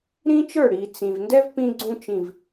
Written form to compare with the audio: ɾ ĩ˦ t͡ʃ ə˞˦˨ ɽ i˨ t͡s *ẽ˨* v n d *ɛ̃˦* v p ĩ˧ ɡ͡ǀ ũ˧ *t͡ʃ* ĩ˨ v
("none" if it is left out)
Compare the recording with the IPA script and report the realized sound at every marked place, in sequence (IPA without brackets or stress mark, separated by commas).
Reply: ĩ˨, ɛ˦, t͡ʃ